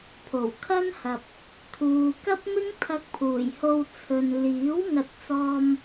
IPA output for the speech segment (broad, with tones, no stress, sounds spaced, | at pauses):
pʰ o˨˩ w kʰ ɐ˥ n h ɐ˨ p̚ | t̪ʰ uː˨ k ɐ˥ p̚ m ɪ˥ ŋ t̪ʰ ɐ˧ k̚ pʰ uː˨˩ j h o˧ w t͡sʰ ɵ˨ n l iː˨˥ w ŋ ɐ˧ t̚ t͡s ɔː˧ m